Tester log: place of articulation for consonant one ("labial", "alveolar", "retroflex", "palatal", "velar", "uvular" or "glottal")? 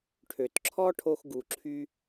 retroflex